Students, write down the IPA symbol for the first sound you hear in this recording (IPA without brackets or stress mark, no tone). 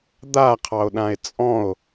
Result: d̪